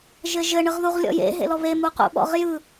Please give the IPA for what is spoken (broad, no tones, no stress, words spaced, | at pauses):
ʒɘʒɘ ɳɯʁðuʁlʲɔ̰jḛ ɦḛlɔβe muqṵɓɔ̰ʁjɯ